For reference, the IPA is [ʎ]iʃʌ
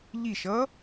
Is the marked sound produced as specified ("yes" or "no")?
yes